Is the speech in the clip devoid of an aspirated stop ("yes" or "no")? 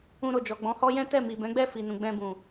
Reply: yes